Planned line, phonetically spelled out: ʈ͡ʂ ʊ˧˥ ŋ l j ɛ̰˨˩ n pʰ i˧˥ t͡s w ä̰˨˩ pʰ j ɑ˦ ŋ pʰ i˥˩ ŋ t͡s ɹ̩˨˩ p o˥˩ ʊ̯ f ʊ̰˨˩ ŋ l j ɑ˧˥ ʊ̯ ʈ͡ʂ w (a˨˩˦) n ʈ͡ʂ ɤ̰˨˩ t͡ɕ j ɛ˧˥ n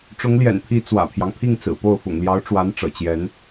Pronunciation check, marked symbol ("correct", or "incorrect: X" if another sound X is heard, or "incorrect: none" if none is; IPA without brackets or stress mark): incorrect: a˧˥